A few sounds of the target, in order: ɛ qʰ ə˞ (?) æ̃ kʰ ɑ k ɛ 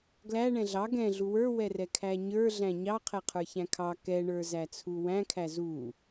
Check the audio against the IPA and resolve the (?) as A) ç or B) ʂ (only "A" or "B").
A